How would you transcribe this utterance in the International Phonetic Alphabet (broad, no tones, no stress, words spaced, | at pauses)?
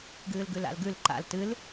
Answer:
ɡɨːlɡʉla̰lɡʉl ǃa̰l tɨl